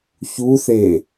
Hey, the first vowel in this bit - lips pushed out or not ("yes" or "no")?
yes